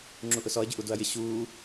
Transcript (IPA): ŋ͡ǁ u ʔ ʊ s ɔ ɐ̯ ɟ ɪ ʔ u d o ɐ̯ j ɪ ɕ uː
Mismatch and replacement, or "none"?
none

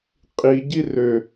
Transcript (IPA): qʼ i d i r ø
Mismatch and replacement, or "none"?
d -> ɟ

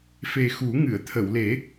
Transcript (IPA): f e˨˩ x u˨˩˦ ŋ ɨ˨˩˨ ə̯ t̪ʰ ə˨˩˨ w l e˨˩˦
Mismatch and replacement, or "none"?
none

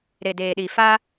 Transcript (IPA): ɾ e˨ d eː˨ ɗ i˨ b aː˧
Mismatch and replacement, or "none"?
b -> f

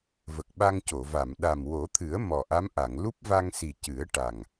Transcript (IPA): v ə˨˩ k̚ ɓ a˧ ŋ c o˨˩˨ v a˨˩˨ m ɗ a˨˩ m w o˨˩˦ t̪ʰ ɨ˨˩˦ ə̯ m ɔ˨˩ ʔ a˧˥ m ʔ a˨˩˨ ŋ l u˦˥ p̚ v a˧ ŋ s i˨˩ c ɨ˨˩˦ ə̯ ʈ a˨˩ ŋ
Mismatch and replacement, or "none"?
none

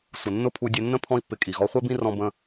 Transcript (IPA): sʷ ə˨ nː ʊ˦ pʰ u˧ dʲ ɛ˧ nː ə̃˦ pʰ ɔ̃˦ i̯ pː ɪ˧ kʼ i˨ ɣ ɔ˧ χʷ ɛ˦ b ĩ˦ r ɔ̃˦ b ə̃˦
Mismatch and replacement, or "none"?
none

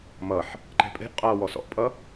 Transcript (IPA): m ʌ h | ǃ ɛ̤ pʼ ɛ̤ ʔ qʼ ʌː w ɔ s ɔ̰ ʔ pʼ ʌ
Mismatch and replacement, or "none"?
h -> ħ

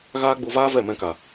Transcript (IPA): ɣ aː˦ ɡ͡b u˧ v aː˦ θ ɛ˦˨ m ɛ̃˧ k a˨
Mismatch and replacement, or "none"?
θ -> v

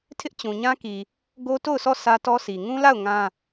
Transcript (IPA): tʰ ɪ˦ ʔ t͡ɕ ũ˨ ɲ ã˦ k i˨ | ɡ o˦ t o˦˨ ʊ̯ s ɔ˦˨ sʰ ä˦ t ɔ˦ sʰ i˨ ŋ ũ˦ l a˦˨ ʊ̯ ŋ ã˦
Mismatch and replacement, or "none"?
none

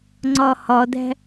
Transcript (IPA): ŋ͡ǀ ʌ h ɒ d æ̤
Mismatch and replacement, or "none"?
ʌ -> ɒ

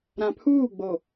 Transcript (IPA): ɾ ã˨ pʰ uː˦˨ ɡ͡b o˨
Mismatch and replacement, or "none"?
none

